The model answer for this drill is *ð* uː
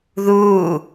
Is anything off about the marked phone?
no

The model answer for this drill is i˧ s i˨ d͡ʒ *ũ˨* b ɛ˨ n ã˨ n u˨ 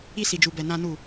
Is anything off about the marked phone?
yes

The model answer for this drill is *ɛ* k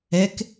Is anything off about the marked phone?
no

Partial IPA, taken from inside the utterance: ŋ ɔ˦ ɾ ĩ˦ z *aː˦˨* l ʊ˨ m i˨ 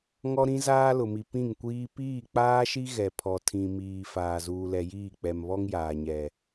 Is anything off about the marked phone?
yes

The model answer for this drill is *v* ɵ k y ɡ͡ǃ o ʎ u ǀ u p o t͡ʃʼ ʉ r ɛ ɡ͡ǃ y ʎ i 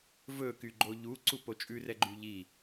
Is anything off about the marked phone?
no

